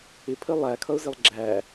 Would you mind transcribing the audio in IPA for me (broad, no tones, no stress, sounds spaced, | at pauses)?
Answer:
ɪ pʰ ə lˠ æ kʰ ʌ ʊ̯ z ɪ lˠ ɡ͡ǁ æ